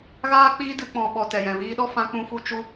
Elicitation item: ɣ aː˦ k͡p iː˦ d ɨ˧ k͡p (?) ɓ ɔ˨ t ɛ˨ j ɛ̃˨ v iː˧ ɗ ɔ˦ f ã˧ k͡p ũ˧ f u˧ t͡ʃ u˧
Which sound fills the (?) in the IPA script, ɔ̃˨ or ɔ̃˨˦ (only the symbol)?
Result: ɔ̃˨